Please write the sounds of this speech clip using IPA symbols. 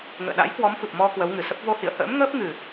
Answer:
ŋ ə̰ː˧˨ ɗ a̰˧˥ j k w ɔ˨˦ m f ɨ˨˩ p̚ m ɔ˧ k w ə˨˦ w ŋ ɨ˨˩ s ə˦˥ p̚ v o˧ h ḭ˧˨ ə̯ h ə̰ː˧˥ m ŋ əː˦˥ p̚ ŋ ɨ˨˩

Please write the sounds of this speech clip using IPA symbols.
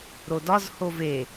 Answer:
ɾ o d ɒ z h o v e

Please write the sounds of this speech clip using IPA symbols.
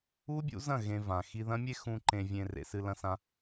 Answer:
u˦ bʲ ṵ˨˦ z ɐ̃˦˨ ɣ ẽ˧ v ã˨ x i˧ ð ɐ̃˦ mʲ e˦ x ũ˧ ǃ ẽ˧ vʲ ẽ˧ r ḛ˧ s ɨ˧ l ɐ̃˦ s ã˦

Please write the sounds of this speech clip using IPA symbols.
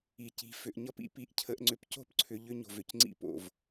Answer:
i˨ c i̤˨ f ʏ˨ ʔ ɲ ʌ˦ p ḭ˦˨ p i˨ ʔ cʰ ə˨ ʔ ŋ͡ǀ ʏ˨ p c o̤˦ p ǀʰ ʏ˨ ʎ ʏ˦ ɲ o̤˨ v ʏ˨ c ŋ͡ǀ ḭ˦ p o̰˨ v

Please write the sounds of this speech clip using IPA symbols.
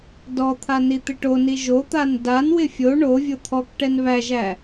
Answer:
d ɔ t̪ʰ a n i t̪ ɪ ʈ o n i ʒ o t̪ a n d a n w ɪ fʲ o ɳ o vʲ o t̪ʰ ɔ k ʈ ɛ n β æ ʒ æ

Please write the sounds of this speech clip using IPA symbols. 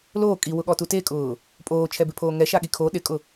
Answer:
l oː kʼ i w ʊ ɠ ɔ t u t e kʼ ʊː | pʼ oː t͡ʃʰ ɛ b ɪ pʰ oː ŋ ɛ ʃ a ɠ i kʰ o ɗ ɪ kʼ ʊ

